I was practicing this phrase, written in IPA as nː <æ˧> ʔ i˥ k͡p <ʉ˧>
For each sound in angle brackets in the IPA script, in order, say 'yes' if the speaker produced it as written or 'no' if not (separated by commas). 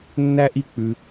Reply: no, yes